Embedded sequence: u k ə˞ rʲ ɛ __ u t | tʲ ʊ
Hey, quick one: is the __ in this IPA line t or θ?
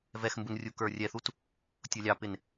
θ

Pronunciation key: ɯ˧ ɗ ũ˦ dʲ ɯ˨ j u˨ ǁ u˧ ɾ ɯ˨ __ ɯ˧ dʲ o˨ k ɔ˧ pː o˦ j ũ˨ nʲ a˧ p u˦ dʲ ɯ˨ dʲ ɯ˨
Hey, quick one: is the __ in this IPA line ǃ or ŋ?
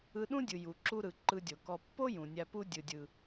ǃ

